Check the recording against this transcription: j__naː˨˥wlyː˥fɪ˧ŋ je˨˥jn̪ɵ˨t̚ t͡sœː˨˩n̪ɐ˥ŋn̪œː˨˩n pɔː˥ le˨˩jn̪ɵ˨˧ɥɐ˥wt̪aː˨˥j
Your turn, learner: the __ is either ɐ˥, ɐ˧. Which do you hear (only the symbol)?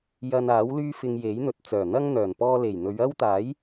ɐ˧